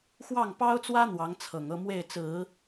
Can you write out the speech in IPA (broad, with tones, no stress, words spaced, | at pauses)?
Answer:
xwɑ˥˩ŋpɑ˥ʊ̯t͡swä˥ n̪wɑ˧˥ŋt͡sʰɤ˨˩ŋɤ˥˧ mwe˥˩ɪ̯t͡sɹ̩˨˩˦